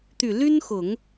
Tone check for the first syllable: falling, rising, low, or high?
low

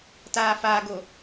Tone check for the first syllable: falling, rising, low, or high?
low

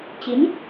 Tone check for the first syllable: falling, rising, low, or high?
rising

